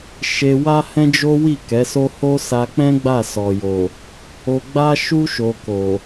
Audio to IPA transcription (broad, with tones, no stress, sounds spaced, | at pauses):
ʃ e˧ w a˦ h ɛ̃˦ d͡ʒ o˦ w i˦˨ k ɛ˨˦ s o˦ h o˦ s a˧ k͡p ɛ̃˦ ɡ͡b a˦˨ s ɔ˨ j o˨ | o˧ ɡ͡b a˦ ʃ u˦ ʃ o˧ k o˨